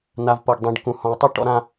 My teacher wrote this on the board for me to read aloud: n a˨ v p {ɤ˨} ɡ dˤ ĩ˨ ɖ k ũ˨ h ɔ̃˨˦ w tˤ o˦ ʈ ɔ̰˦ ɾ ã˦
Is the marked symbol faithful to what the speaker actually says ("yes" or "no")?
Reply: yes